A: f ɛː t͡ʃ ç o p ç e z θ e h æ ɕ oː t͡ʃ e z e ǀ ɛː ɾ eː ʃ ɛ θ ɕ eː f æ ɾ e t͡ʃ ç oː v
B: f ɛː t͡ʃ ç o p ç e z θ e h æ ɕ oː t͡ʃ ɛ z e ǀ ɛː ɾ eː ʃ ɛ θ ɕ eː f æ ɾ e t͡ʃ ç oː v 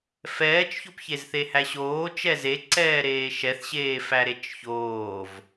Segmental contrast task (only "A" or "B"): B